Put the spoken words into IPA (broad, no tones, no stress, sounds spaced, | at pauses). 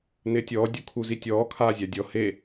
n ɪː tʲ ɔː dʲ u kʰ u z i tʲ ɔː kʰ aː zʲ a dʲ ɔ h e